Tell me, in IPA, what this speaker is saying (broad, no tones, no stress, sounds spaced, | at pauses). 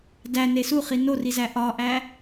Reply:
d æ n e s u χ i n o r i z æ ʔ ɒ ʔ æ